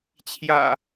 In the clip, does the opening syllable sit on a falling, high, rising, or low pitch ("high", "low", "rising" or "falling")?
low